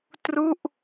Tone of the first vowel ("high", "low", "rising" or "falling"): falling